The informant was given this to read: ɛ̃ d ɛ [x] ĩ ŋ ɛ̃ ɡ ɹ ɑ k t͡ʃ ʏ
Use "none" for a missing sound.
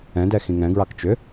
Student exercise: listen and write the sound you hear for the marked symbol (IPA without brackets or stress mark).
x